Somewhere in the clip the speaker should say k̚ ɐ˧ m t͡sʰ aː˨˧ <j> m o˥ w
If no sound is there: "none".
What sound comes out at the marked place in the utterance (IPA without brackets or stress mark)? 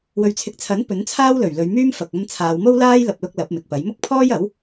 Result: w